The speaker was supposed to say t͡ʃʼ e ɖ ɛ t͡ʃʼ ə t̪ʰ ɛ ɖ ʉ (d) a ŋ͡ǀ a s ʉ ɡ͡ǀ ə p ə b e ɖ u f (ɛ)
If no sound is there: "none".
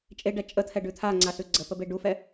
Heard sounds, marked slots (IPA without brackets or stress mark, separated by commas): t̪ʰ, ɛ